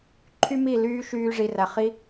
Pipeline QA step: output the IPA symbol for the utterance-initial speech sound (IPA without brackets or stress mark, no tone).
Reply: ǃʰ